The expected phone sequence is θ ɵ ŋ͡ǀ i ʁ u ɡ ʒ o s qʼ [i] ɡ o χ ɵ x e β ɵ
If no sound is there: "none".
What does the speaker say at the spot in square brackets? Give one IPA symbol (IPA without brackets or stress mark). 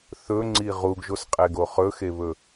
e